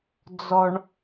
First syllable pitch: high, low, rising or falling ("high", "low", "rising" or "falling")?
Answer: low